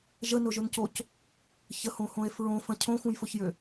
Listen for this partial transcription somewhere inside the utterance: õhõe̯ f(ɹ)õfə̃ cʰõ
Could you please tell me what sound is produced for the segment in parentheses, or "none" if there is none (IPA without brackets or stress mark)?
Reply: ɹ